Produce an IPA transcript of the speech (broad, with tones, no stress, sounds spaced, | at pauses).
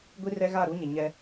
ɡʷ i˦ r ɛ˦ ɣ a˦˨ ɾ u˦ ɲ ɪ˨ ɲ ɛ˦